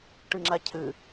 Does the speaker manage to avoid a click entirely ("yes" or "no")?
no